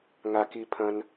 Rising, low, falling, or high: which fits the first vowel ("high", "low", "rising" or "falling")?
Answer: low